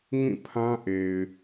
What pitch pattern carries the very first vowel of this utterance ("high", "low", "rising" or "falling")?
falling